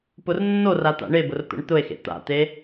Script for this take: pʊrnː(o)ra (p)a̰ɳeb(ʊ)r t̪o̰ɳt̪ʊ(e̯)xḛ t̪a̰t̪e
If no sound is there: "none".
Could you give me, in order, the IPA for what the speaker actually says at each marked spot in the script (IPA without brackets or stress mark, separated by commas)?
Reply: o, t̪, ʊ, e̯